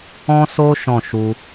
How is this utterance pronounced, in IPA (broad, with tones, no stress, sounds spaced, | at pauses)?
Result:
ɔ̃˦ s o˦ ʃ ɔ̃˦˨ ʃ u˧